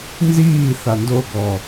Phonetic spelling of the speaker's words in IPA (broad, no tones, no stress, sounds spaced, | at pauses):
n z iː θ a n d o ɡ ɔ